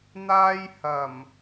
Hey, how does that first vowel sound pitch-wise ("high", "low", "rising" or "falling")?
high